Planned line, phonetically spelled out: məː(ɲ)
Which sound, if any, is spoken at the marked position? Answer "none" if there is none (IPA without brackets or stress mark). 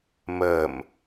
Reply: m